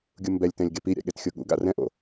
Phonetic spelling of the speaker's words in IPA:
ɡʲ u m b ɛ lʲ t ɛ̃ lʲ ɡ e p i ɾʲ a̰ ɠ e t xʲ o ɠ ṵ ɡ a̰ r ɛ̃ ʔ o̰

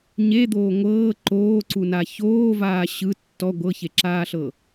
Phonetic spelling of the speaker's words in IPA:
ɲ e d̪ oː ŋʷ ɤː ǃ oː ǀ u n a ç oː v aː ɕ ɯ tː ɔ ɡʷ ɤ ç e ǁ aː ɬ ɤ

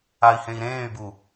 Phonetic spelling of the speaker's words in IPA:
a i̯ h ẽ i̯ ɾ ẽː y̯ b u

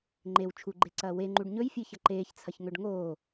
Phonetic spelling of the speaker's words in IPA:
ŋ͡ǃ e w t͡ʃʰ u ɡ͡ǃ e ǀ ɐː w e ŋ͡ǃ u ɖ ɲ ɵ j fʲ ɨ ç ɐ ǃ eː ç t͡sʰ ɐ ç ŋ ɵ ɖ ŋ oː

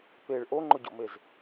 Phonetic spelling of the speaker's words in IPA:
p e ɭ ʔ o ŋ͡ǃ ʊ ɟ o̰ m e z

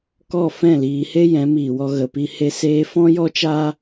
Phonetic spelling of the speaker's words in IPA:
k ɔ˦˨ f ɛ̃˦˨ l iː˧ h e˦ j ɛ̃˨˦ m iː˨ w ɔ˧ ɣ ə˨ p i˧ h e˧ s eː˧ f ɔ̃˦ j ɔ˦ t͡ʃ aː˦

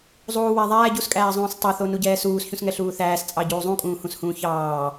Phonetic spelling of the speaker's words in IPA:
zˤ uː w æ ðˤ æː ɟ u s kʼ æː zˤ ũː s tˤ ɑ θ o n u ɟ ɛː s uː s ç ũ s ŋ ɛ ɬ uː θ æː s t͡sʼ ɑ ɟ uː zˤ ũ kʼ ũː h ũ s h ũː ç ɑː

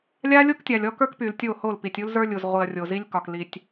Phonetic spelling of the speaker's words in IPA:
lʲ a˦ lʲ o˦ k tʲ a˨ lʲ ɔ˦ k ə˞˦ k p y˨ l tʲ o˦˨ h o˦˨ l p i˨ tʲ u˦ l z ə˞˦ lʲ u˨ z ʁʷ i˨ ɐ̯ rʲ o˨ z i˦ lʲ k ɒ˨ k l i˨ tʲ

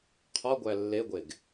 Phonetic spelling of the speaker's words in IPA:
qʰ ɒ ɡʷ æ lː e ɡʷ e ɡ

